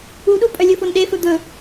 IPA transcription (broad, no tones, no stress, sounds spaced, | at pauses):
u ɗ u pʼ œ lʲ ɵ f o n ɗ e f ɵ d̪ ɵ